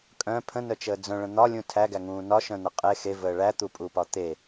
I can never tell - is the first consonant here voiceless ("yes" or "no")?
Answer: yes